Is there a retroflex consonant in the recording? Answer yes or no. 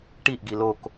yes